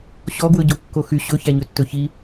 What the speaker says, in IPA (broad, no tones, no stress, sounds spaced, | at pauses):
ɕ ɔ ɡ w ɵ ɟ o kː o x y ɕ ɵ ç æ ɲ ɵ tː ɵ ç i